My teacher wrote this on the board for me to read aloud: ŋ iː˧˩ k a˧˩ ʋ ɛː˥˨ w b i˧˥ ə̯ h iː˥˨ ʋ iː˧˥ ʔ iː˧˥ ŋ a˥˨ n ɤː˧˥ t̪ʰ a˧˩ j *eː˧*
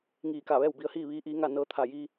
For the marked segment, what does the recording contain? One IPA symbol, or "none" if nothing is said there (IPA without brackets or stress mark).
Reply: iː˧